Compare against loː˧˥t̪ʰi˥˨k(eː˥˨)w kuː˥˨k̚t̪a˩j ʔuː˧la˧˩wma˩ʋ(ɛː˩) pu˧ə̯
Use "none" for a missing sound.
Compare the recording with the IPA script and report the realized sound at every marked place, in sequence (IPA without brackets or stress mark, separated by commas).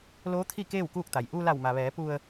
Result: eː˥˨, ɛː˩˧